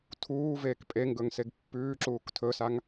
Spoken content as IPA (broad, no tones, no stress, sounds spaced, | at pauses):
tʰ uː v eː k pʼ e ŋ ɡ ɵ ŋ s e ɡ pː ʉː ǁ uː k tʰ ɵ s a ŋ